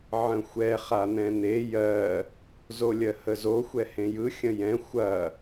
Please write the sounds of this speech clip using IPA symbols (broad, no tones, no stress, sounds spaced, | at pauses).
ʕ ə̃ xʷ ɛ χ a n̪ ɛ̃ n̪ e j ɜ | z o lʲ ɜ h ə z o xʷ ɛ h ẽ j ɯ xʲ ə̃ j ɛ̃ xʷ ɐ